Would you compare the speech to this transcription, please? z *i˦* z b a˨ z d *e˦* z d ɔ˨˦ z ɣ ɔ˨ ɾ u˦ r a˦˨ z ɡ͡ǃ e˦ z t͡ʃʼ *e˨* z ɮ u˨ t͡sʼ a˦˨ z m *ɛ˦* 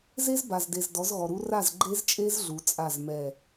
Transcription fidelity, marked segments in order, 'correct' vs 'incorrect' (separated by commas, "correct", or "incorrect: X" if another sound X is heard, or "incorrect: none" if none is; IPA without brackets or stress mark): incorrect: e˦, incorrect: e˨, incorrect: e˦, incorrect: ɛ˦˨